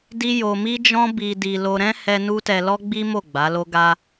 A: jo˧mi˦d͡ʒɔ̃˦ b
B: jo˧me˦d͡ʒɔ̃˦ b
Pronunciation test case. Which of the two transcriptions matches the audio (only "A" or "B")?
A